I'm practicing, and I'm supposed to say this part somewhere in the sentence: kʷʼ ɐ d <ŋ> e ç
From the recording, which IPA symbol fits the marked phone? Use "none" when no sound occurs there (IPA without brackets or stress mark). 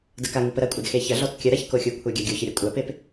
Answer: x